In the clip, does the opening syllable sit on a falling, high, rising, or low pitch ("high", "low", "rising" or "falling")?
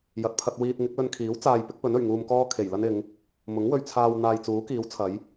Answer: low